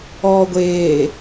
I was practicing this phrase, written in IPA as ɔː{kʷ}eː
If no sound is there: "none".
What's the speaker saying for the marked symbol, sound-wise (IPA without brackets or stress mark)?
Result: ɡʷ